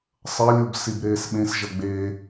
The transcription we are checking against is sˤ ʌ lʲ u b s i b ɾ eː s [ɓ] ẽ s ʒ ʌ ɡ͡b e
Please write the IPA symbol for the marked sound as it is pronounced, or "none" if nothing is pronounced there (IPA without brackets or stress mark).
ɓ